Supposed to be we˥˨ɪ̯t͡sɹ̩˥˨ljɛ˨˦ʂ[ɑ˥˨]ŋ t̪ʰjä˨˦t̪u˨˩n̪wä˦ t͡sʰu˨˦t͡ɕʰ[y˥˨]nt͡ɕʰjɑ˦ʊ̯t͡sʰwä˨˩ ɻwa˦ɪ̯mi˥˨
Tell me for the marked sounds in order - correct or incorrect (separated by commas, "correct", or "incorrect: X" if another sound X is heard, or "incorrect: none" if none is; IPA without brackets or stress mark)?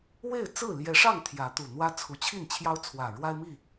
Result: correct, incorrect: i˥˨